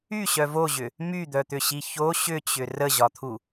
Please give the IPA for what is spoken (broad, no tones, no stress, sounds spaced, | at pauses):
y ɕ œ v o ʑ ʏ | m y d̪ œ t̪ ʏ ɕ i ç o ɕ ʏ t͡ɕ ʏ r ə ʑ ɒ t̪ʰ u